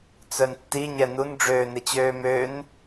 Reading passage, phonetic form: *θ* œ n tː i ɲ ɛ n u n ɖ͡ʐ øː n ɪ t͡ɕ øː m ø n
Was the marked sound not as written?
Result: yes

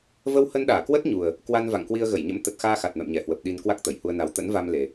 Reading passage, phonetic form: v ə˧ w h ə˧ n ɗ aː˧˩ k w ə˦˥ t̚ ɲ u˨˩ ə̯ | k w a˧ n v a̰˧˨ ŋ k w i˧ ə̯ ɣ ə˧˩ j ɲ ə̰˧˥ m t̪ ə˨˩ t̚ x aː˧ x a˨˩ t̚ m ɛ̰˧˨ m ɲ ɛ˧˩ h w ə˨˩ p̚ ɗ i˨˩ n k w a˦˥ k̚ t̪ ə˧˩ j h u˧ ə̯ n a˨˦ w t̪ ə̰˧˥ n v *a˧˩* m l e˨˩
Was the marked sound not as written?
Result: yes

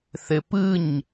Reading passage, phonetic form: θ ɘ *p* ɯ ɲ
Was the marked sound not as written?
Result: no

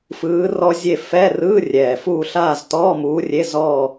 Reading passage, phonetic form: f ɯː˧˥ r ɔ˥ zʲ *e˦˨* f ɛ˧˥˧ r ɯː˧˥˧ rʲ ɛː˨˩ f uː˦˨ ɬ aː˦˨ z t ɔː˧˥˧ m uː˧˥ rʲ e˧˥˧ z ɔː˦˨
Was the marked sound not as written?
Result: no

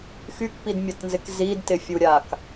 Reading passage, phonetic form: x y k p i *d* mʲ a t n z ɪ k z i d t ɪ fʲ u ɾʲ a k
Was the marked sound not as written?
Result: no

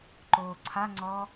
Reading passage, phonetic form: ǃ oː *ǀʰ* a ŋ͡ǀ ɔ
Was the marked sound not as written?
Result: no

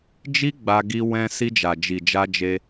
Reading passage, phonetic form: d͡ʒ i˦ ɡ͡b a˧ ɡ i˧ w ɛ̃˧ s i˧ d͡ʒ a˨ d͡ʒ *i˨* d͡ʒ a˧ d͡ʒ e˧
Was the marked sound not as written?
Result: no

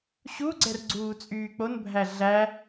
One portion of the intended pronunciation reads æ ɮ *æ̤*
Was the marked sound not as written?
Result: yes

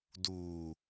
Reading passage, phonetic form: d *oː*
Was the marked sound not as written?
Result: yes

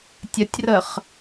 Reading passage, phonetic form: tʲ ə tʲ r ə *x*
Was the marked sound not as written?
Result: yes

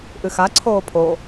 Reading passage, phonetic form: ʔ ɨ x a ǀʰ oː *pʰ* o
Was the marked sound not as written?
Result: no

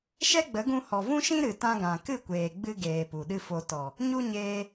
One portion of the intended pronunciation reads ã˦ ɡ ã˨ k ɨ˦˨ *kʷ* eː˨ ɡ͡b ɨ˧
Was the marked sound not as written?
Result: no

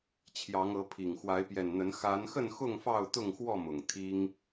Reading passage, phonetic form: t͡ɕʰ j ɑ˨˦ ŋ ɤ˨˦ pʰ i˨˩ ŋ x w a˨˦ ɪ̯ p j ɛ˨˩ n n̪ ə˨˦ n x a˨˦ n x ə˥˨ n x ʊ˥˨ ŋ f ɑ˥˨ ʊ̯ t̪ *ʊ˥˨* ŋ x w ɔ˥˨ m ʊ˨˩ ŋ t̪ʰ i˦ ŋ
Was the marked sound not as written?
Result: no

